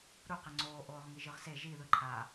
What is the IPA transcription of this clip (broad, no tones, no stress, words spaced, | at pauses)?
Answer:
ɾuqe ŋ͡ǀoː ʔoːʁŋiʒɯʁse ʒi ðɯǃʰa